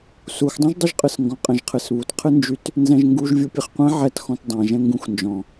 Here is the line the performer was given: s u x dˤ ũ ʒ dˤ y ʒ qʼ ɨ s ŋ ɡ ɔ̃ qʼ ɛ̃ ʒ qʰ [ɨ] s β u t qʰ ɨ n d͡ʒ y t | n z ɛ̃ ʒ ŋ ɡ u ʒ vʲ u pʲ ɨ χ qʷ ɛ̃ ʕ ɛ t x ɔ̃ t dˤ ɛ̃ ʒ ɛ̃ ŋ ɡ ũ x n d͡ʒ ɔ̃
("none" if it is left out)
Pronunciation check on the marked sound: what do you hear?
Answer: ɨ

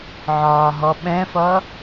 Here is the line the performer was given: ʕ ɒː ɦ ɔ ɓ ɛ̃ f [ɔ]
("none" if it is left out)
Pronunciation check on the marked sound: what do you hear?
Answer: ʌ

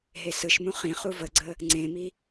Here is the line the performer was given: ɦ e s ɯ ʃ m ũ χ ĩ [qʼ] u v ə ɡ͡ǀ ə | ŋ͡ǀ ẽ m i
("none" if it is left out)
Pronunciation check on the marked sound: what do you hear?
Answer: χ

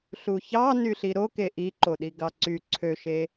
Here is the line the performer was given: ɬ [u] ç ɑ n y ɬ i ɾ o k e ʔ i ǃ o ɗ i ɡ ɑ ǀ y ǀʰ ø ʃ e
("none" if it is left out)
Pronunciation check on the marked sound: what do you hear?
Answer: u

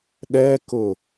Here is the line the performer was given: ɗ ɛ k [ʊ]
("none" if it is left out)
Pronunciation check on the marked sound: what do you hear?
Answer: ʊ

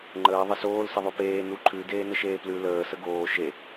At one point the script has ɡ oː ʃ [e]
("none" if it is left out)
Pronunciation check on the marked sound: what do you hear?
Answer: e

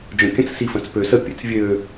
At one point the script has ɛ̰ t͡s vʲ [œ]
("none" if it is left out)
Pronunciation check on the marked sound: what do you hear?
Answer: ø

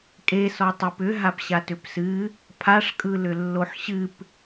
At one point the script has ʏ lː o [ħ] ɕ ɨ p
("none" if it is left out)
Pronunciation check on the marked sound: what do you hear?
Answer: ħ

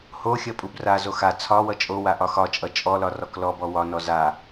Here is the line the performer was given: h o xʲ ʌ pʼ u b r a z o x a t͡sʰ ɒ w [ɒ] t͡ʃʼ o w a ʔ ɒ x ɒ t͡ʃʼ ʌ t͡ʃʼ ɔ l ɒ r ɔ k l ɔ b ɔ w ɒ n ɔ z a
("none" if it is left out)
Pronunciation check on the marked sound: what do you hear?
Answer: ʌ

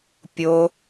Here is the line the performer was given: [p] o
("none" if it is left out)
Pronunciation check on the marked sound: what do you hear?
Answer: pʲ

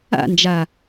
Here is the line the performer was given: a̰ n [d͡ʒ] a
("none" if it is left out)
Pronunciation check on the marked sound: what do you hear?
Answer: d͡ʒ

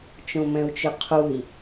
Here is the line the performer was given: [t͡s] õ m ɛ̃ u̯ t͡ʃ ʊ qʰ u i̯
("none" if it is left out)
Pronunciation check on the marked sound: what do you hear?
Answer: t͡ʃ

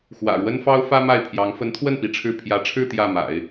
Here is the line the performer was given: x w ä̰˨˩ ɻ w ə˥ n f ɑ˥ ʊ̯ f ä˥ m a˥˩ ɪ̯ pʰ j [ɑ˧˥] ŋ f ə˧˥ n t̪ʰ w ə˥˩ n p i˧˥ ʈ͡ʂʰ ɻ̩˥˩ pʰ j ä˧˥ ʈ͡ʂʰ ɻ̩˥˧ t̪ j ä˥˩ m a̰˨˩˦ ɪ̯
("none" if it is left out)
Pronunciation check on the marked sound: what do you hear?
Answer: ɑ˧˥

